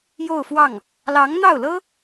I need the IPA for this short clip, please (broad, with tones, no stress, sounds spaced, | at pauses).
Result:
j o˥˧ ʊ̯ f w ɑ˥˩ ŋ | l ɑ˧˥ ŋ n̪ ɑ˥˩ ʊ̯ l ɤ˥